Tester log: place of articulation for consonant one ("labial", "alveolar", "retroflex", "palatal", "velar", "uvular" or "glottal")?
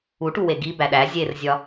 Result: retroflex